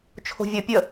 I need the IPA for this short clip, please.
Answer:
t͡ʃʰ o̤ vʲ ə pʲ ə

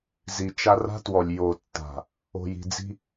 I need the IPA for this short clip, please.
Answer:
z i˨ t͡ʃ a˦ r a̤˦ t w ɔ˨ lʲ j o˨ tː a̤˨ | o̤˨ j i̤˨ d͡z i̤˦

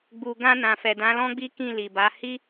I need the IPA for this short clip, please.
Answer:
ɡ͡b u˨ ɡ ã˧ n ã˨ f ɛ˨ d ã˨˦ l ɔ̃˦ ɡ͡b i˦ k ĩ˦˨ l i˨ b a˨˦ h i˦

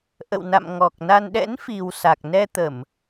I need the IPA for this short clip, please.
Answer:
ʔ ə̰˧˨ w n a̰˧˨ m ŋ ɔ˨˩ k̚ n a˧ n ɗ ɛ̰˧˥ n f i˨˩ w s a˨˩ k̚ n ɛ˧ t̪ ə˧˩˨ m

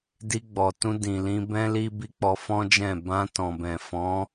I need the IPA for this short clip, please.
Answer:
d i˧ ɡ͡b ɔ˨ t ũ˧ d ĩ˨ l ĩ˧ b ɛ̃˦ l i˦ b i˦ k͡p ɔ˧ f ɔ̃˦ d͡ʒ ɛ̃˦˨ b ã˧ t ɔ̃˨ b ɛ̃˨ f ɔ̃˨˦

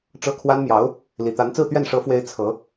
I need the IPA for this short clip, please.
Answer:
ʈ͡ʂ ɤ˥˩ kʰ w a˥ n m j ɑ˧˥ ʊ̯ | l i˨˩ t̪ a˧˥ n t͡s ɹ̩˥˧ t̪ ɥ ɛ˥˩ n ʂ ɤ˧˥ f w e˧˥ ɪ̯ t͡sʰ ɤ˧˥

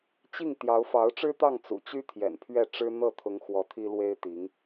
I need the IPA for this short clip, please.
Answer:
t͡ɕ i˥˩ ŋ t̪ j ɑ˧˥ ʊ̯ f ɑ˧˥ ʊ̯ ʈ͡ʂ ɻ̩˥ t̪ ɑ˥˩ ŋ t͡s ṵ˨˩ t͡ɕ y˥ t̪ʰ j ɛ̰˨˩ n pʰ ɥ ɛ˥˩ ʈ͡ʂ ɻ̩˥ n̪ ɤ˥˩ t̪ʰ ʊ˧˥ ŋ x w ɔ˧˥ t̪ʰ i˥ l w e˥ ɪ̯ t̪ i˧˥ ŋ

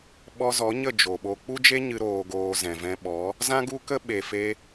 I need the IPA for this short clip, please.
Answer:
ɓ ɔ˧ z ɔ˨˦ ɲ ə˦˨ d͡ʒ o˨ ɓ o˧ k͡p u˦ d͡ʒ e˦ ɲ ɨ˧ ɾ oː˧ ɡ oː˧ z ɛ̃˨ v ɛ̃˧ ɓ ɔ˨˦ | z ã˦ ɡ u˦ k ə˦ ɓ e˨ f e˧

